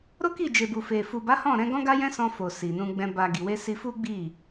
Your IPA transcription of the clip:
ɾ o˦ k i˦˨ d͡ʒ e˨ b u˨ f e˨ f u˨ b a˨˦ h ɔ̃˦˨ ɾ ɛ̃˨˦ ɡ ɔ̃˦ ɡ a˦ j ɛ̃˦ s ɔ̃˧ f o˨ s i˨ n ũ˧ ɡ͡b ɛ̃˧ b a˨ ɡ i˨ w e˧ s i˧ f u˦ ɡ͡b i˦˨

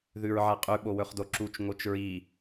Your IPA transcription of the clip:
ð ʉ ɹ ʕ a qʼ ʉ ɓ o w ɵ χ d o ǁ u t͡ʃ ŋ o t͡ʃ ɹ i

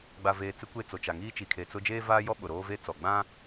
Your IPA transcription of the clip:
ɡ͡b a˨ v eː˨ t͡s ɪ˦ kʷ e˦˨ t͡s o˨ t͡ʃ a˨ ŋ iː˦ t͡ʃ i˨ kʰ e˨ t͡s ʊ˦ d͡ʒ eː˦ v aː˦ j ɔ˦ ɓ ʊ˨ ɾ oː˦ v e˦ t͡s ɔ˨ ɡ͡b ã˦

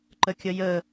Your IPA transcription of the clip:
ǃ ə kʲ ə j ə

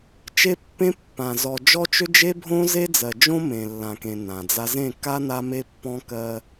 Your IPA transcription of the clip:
t͡ʃ e˦ pː ẽ˦ pː ã˨ z ɔ˨ d͡ʒ ɔ˦ t͡ʃ ø˦ d͡ʒ e˦ bʱ õ˦ z e˦ d͡z ɜ˨ d͡ʒ õ˦ m ẽ˨ lː ã˨ k ẽ˨ n ã˨ d͡z a˦ z ẽ˦˨ k a˦ n a˦ m e˦ pː ɔ̃˦ k ɜ˦

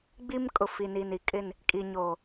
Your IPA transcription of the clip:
ɡ͡b i˦ m kʼ ʊ˨ f i˨ n i˨ n i˨ kʼ ɪ˦˨ n | kʼ i˨ ɲ oː˨

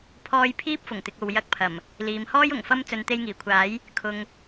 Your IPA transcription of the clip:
pʰ ɔː˧ j pʰ iː˥ p̚ f ʊ˨˩ ŋ t̪ ɪ˨ k̚ o˨ w j ɐ˧ k̚ pʰ ɐ˨˩ m | l iː˨ m h ɔː˥ j ʊ˨˩ ŋ f ɐ˥ m t͡s ɵ˨˧ n t̪ e˧ j ŋ iː˨˩ kʷʰ aː˨˥ j | kʰ ʊ˧ ŋ

